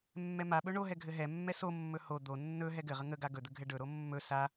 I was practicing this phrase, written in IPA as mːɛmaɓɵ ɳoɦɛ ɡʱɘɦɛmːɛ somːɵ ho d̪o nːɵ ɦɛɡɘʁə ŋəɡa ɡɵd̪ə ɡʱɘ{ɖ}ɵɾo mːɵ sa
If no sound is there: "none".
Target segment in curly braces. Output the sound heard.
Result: ɖ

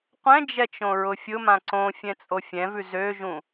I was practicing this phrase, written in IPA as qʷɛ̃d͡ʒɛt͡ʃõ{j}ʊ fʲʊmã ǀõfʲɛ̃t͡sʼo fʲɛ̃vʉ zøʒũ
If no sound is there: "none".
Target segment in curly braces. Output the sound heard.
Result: ɹ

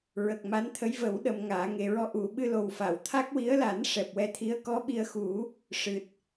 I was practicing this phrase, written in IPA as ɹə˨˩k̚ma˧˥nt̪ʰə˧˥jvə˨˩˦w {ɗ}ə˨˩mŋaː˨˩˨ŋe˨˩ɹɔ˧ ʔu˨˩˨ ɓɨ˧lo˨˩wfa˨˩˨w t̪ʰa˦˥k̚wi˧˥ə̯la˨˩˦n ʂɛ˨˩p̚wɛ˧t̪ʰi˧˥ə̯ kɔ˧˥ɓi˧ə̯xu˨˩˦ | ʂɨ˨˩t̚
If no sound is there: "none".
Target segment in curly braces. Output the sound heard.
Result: ɗ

